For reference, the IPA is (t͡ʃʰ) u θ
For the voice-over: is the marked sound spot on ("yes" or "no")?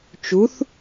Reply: no